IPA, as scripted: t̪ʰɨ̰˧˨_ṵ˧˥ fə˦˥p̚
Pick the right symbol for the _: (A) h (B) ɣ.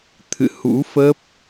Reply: A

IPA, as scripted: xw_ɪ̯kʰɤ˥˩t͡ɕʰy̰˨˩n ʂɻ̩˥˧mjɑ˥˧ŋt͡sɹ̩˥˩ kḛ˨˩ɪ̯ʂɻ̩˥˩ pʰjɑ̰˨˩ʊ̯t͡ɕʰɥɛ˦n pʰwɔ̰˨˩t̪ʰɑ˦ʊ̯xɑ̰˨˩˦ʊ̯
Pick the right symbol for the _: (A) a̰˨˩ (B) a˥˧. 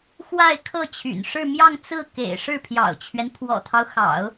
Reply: B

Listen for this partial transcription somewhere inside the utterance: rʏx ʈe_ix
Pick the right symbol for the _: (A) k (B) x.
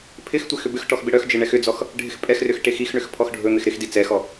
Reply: B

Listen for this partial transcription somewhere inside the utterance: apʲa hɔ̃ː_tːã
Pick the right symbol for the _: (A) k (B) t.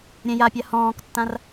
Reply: A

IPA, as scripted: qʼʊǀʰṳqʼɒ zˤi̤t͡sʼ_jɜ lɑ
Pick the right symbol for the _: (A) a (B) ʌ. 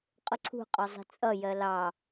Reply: B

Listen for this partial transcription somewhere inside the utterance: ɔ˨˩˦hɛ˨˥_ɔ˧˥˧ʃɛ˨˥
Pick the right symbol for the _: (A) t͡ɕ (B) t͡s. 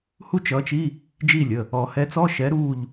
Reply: B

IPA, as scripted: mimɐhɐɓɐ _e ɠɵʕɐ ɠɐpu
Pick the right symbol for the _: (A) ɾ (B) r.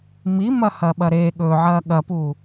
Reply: A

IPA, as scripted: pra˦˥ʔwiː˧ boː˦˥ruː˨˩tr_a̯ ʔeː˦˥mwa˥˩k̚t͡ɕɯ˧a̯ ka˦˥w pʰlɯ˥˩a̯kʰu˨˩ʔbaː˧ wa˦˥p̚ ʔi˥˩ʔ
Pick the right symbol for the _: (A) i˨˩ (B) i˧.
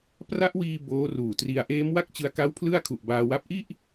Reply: B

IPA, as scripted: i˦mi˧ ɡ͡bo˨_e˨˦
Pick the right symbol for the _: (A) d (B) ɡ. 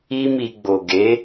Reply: B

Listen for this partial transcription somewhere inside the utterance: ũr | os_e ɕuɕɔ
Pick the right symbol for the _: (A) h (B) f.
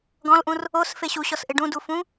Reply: B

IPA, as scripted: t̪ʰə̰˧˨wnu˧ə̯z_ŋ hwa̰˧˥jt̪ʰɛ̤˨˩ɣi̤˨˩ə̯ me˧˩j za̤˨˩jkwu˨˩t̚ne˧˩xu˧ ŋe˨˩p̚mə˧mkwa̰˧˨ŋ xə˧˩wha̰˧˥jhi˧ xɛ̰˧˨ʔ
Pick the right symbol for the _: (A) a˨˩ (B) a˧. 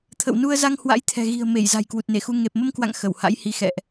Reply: B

